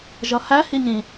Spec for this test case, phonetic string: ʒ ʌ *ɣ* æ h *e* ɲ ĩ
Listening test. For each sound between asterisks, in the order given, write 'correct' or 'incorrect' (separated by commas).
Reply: incorrect, incorrect